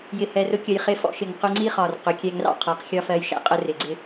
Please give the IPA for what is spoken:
jɪ˨hɛ˨rʊ˧ kʲə˨jχɪ˧fɔ̰˧ʃɪ˨ŋ qʊ˧ŋ͡ǀi˦χɒ˨r qʊ˨˦kʲɛ˧ŋrɑ̰˦ qʰɜ˨˦qxʲɒ˦fɜ˧jʃæ̰˨ qʼə˧ rɪ˨ɡ͡ǀɪ˦

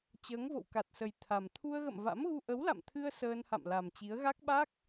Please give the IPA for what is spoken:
t͡ɕəː˨˦ŋvo̰˧˨wka˨˩t̚sə˨˩j t̪ʰa˨˩m t̪ʰu˧ə̯ɣə̰˧˨mva̰˧˥mɣu˧ ʔə˨˦wla̰˧˨mt̪ʰɨ˧ə̯ səː˧nha̰˧˨mla˨˩mt͡ɕi˨˦ə̯ ɣa˦˥k̚ɓa˦˥k̚

